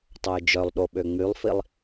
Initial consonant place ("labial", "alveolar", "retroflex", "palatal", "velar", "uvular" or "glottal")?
alveolar